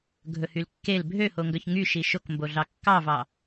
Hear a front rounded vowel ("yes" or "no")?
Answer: yes